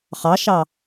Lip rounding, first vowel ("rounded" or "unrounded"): unrounded